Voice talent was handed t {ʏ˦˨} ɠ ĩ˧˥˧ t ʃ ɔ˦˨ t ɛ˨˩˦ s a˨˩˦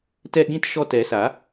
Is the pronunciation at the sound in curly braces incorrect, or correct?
incorrect